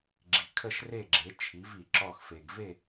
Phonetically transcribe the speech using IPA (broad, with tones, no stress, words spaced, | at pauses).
ɡ͡ǁi˨ kʰə˥˧ʃre˥˧ɡ͡ǁe˨˥ t͡ʃʰi˨˥v i˨ ǁɔ˥˧x fe˨ɡve˥˧